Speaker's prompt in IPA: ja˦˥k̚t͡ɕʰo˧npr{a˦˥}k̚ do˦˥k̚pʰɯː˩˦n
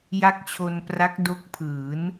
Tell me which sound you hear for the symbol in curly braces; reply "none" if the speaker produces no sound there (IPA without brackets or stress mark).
a˦˥